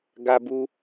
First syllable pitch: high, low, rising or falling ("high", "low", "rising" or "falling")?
high